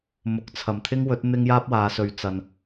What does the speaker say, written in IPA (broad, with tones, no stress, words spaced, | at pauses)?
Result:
mʊ˨˥k̚t͡sʰɐ˨m t̪ʰɪ˥ŋwɵ˨˥t̚ n̪ɪ˥ŋjaː˥p̚waː˨˧sɵ˨ɥ t͡sɐ˨n